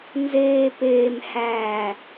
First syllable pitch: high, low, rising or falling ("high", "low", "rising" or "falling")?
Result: low